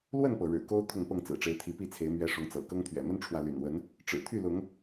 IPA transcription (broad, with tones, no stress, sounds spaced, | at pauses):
l w ə˥˨ n p ɤ˩ ɻ ɻ̩˨˩ k o˦ ʊ̯ t̪ʰ ʊ˥˨ ŋ p ɤ˥˨ ŋ t͡s ɹ̩˨˩ ʈ͡ʂ e˨˦ ɪ̯ t̪ʰ i˨˦ p i˥˨ t͡sʰ e˨˦ ɪ̯ m ɥ ɛ˨˦ ʂ ʊ˨˦ ŋ t͡s ɤ̰˨˩ k ɤ˦ ŋ t̪ʰ ɥ ɛ̰˨˩ m ə˦ n ʈ͡ʂʰ w ä˨ l y̰˨˩ n w ə˨˦ n | ʈ͡ʂ ɻ̩˨˩ t̪ʰ y˥˨ l ʊ˨˦ ŋ